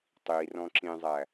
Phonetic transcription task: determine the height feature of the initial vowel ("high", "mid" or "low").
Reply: high